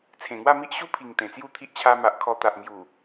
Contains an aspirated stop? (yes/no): yes